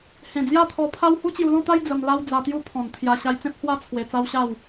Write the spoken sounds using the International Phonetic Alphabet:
h ẽ˨˩ d͡z j a˥˧ t̪ʰ ɔ˧ pʰ a˦ w h u˦ t͡ɕ j u˧ l ɔ̃˥˧ t̪ a˦ j d͡z ə˧ m l a˦ w d͡z a˧ t̪ j u˦ pʰ ɔ̃˨˩ n t̪ʰ j a˧ ɕ a˧ j t͡s ẽ˦ p̚ h w a˦ t͡sʰ w e˧ t͡s a˦ w ɕ a˥˧ w

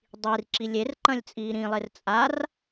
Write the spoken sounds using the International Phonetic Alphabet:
dˤ i r ǁ i lʲ e r ǃ ɐ̃ lʲ t͡sʼ iː ɾ ĩ lˠ e r t͡sʼ a r

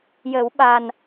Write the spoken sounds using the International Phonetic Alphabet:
j ə˨˩˦ w ɓ a˨˩ n

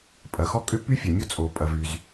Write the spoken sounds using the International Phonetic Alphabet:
pʼ ɐ˩ x ɔ˥ kʼ ʏ˥ p y˥ fʲ ɐ˩ mʲ o˥ t͡sʼ o˩ pʼ ɐ˩ v y˩ z

